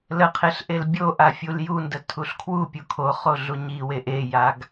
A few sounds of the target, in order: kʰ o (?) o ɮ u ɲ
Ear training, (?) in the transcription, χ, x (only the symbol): χ